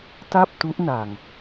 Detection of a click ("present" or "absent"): absent